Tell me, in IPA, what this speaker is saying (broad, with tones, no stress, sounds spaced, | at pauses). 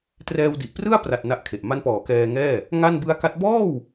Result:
t r ɛː˧ w d i˨˩ ʔ p r ɯ˥˩ a̯ p r a˨˩ t̚ n a˦˥ ʔ kʰ e˨˩ ʔ m a˦˥ n p ɔː˩˦ k ɛː˧ ŋ ɛː˥˩ | ŋ a˥˩ n b ɯ˦˥ a̯ k a˦˥ t̚ b ɔː˥˩ w